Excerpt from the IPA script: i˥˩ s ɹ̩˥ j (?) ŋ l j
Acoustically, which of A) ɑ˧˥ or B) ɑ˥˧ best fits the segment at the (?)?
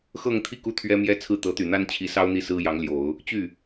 A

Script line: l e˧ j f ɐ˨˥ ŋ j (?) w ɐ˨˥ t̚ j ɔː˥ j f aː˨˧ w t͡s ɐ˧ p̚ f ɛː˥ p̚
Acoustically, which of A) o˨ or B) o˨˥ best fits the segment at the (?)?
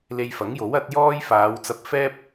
B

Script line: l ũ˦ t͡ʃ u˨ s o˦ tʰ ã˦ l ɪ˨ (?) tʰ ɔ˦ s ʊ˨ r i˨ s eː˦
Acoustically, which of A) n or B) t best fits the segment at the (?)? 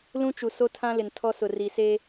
A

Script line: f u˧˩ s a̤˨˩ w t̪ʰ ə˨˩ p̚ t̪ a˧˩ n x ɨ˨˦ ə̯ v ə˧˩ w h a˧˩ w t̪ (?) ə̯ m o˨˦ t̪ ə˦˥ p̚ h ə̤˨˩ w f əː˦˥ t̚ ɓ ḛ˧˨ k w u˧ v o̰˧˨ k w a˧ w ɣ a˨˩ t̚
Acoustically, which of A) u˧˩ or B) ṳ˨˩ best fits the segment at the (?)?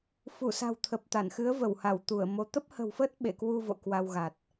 A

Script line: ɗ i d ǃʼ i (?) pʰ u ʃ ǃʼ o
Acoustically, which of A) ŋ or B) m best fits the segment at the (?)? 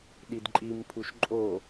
B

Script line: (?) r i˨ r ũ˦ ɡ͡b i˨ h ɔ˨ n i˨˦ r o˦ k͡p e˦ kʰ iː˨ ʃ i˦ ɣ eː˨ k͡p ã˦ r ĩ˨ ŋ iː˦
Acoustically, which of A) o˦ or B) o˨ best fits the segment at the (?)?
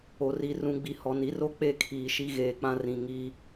B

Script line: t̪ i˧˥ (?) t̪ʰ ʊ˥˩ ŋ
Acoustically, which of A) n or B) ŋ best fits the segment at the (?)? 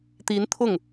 A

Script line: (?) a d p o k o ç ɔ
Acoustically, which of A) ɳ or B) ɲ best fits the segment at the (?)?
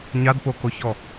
B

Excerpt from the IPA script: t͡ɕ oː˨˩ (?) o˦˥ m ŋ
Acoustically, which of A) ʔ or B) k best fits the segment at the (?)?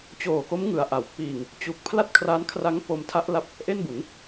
B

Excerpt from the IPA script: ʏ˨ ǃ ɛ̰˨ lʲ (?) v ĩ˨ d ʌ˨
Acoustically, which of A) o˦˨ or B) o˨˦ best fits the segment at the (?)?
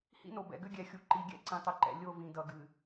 A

